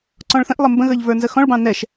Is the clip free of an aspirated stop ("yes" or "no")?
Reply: yes